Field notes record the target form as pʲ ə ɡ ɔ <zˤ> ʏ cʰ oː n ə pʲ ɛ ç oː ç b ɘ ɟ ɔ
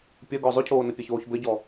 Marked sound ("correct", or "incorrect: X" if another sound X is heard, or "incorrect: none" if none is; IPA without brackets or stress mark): correct